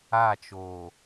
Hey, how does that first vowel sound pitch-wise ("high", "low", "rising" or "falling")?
falling